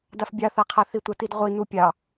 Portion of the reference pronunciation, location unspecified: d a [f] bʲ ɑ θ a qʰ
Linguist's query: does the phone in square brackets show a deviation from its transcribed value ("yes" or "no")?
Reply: no